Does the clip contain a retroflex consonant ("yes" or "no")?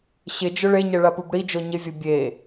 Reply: yes